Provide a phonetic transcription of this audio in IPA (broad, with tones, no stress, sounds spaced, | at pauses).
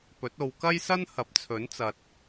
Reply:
p ɵ˨˥ t̚ o˨˧ w k ɐ˥ j s ɐ˥ n h ɐ˨˥ p̚ t͡sʰ ɵ˨˥ n t͡s ɐ˨ t̚